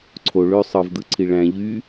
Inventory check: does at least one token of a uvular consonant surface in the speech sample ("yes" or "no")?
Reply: no